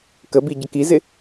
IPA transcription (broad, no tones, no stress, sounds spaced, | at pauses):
k ə b i ɟ ə k i z ɪ